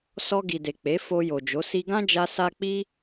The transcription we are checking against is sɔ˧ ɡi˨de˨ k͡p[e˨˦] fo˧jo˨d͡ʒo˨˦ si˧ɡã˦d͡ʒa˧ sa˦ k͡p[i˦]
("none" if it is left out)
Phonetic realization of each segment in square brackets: e˨˦, i˦

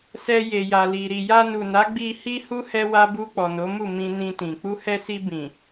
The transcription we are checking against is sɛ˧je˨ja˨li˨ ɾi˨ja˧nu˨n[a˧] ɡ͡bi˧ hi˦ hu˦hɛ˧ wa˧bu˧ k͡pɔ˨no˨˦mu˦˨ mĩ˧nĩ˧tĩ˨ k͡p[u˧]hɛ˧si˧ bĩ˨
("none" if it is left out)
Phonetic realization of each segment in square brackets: a˨˦, u˧

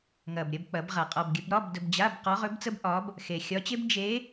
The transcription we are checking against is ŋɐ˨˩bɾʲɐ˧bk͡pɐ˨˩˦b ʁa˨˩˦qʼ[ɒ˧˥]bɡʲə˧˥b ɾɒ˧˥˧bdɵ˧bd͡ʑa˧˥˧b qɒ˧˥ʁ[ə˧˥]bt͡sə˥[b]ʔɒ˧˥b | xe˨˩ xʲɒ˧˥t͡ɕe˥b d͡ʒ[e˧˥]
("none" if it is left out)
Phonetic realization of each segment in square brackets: ɒ˧, ɵ˧˥, b, e˧˥

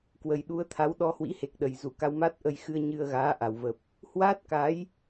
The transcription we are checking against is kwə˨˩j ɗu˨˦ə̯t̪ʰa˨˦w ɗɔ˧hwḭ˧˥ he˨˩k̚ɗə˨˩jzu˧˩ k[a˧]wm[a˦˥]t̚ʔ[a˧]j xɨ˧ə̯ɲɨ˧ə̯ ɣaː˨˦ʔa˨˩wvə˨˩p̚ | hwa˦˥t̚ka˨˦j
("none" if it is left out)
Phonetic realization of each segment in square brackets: a˧, a˦˥, ə˧

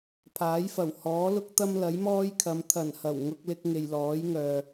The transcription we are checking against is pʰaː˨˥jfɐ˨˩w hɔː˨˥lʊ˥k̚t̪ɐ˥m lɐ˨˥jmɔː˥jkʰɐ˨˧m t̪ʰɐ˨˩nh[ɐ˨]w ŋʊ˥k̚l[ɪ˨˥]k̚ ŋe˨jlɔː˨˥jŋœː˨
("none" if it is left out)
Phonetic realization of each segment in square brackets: ɐ˨˩, ɪ˥

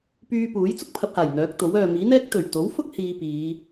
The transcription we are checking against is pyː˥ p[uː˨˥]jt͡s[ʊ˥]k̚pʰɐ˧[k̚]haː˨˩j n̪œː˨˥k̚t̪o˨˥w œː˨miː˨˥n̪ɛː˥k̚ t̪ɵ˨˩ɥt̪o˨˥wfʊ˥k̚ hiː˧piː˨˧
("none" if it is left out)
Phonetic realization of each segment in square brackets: uː˨˥, ʊ˥, p̚

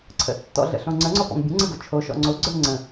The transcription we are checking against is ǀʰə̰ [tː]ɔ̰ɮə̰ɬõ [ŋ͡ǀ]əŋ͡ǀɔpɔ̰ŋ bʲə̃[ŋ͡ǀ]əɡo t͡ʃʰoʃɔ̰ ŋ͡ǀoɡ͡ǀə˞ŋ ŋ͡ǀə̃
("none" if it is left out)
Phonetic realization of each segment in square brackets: tː, ŋ͡ǀ, ŋ͡ǀ

